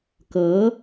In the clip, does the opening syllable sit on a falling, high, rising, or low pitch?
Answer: rising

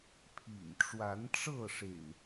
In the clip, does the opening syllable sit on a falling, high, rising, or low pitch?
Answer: low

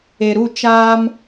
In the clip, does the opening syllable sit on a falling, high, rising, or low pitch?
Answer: low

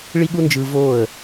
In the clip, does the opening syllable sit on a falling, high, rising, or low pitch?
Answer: high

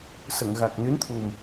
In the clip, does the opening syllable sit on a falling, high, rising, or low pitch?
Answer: low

